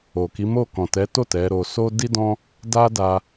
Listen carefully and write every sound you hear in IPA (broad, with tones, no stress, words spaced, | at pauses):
o˨ki˨˦mo˦˨ kɔ̃˨tɛ˨˦to˦˨ tɛ˨˦ɾo˧ so˦ di˦ dɔ̃˦ | da˦da˧